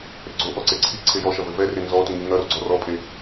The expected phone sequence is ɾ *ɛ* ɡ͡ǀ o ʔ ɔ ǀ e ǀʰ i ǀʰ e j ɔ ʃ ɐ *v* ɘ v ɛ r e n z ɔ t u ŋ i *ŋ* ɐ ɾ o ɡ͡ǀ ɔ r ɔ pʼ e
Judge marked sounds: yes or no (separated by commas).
no, yes, yes